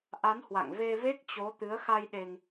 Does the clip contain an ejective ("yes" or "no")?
no